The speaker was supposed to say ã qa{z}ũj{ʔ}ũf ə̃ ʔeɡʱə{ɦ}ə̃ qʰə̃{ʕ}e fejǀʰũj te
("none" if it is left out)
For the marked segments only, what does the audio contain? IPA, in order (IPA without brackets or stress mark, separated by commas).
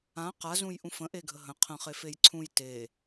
z, ʔ, ɦ, χ